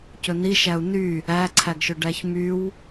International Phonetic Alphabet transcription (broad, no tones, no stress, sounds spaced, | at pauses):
c ɵ n i ʃ æ u̯ n y | æ ǀʰ æ ɡ ʃ ɵ ɖ æ ç m y w